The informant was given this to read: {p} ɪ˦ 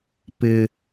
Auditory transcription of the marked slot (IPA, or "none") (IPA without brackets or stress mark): p